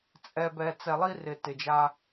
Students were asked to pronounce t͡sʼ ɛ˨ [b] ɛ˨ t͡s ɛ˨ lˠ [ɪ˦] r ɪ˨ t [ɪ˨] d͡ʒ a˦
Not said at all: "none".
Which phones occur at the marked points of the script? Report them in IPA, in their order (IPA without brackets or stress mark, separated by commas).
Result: b, i˦, ɪ˨